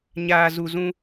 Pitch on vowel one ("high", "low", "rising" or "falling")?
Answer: low